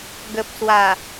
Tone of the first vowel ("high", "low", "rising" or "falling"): low